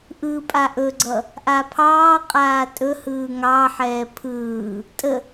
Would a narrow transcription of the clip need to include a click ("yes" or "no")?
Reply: yes